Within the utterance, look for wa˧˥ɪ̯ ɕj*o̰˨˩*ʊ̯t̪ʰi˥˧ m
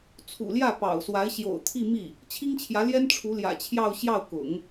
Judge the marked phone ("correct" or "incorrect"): correct